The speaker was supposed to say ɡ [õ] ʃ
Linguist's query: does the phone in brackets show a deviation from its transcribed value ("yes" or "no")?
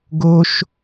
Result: yes